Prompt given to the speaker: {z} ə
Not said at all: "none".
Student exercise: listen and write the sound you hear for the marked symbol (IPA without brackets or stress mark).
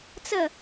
t͡s